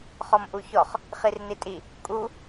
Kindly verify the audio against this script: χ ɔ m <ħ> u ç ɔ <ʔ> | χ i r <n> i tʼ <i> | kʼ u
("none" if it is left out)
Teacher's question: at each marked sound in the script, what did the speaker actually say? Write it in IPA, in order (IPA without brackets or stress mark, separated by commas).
ʔ, χ, n, i